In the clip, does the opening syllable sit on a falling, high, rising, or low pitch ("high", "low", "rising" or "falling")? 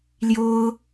high